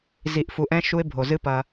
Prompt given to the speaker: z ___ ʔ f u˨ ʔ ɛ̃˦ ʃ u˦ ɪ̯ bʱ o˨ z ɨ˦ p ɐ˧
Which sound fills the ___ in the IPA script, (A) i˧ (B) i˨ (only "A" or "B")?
B